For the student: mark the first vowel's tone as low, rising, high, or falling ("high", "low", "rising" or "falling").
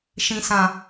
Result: low